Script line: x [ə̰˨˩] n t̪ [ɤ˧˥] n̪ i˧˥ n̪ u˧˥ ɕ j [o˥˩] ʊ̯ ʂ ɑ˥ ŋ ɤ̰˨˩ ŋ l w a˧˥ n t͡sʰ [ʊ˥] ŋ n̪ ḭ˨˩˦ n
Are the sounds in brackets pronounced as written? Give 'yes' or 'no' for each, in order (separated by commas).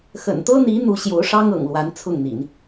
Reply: yes, no, no, no